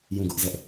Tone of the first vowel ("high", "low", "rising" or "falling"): falling